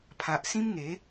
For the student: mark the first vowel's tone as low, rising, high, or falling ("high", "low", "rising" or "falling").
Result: low